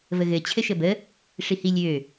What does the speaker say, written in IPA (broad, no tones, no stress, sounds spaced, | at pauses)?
v ə ɣ ɘ t͡ɕʰ ɘ ʃ ə b ə | ʂ i h i lʲ ø